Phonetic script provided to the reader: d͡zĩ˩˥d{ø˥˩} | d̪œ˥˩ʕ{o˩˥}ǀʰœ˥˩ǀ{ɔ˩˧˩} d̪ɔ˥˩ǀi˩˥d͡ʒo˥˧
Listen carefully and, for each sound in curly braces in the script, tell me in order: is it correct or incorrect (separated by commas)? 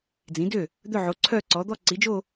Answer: correct, correct, incorrect